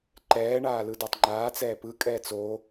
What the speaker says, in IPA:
ǃɛːɳaː lɯdatˤŋ͡ǃaːt͡sɛː pɯkʼɛːt͡s o

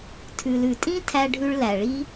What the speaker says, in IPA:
tʰʉ˨lʉ˨tʼĩ˦tʰæ˧ ɖʱʉ˧ɭlæ˨ɭi˦

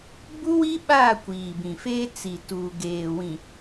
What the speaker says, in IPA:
bu˦wi˦ɓaː˦˨ kʷiː˨bĩ˨feː˦ t͡si˨tuː˨ ɡeː˨wĩ˨

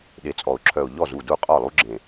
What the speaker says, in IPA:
ɗe˨˩˦t͡sʼɔ˨˩˦ʊ̯ǁʰœ˨˩ʊ̯ ʎɔ˥˩zu˥˩ du˥˩qʼɔ˥˩lˠu˦˥ɡ͡ǁẽ˨˩

